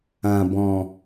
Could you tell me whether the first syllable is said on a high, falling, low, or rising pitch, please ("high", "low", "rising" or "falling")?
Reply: low